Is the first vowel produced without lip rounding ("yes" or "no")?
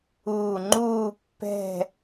no